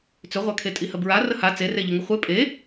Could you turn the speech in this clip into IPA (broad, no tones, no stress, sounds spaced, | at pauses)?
t͡s ʏ ʁʷ a kʰ e tʼ i h ə b ɹ a r ə h a t͡s e r e ʎ ə ŋ ɪ χʷ e pʼ e